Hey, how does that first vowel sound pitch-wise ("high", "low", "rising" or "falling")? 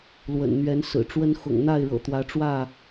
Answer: low